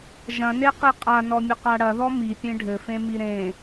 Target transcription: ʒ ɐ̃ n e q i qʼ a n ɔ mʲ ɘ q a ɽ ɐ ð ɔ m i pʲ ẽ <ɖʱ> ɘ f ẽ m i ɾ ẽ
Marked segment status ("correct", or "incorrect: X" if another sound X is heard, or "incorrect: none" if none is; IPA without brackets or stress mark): correct